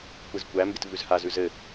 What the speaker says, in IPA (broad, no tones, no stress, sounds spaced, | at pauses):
kʷ i z kʷ æ m b ɪ t v ʉ z h a z ʉ z ɘ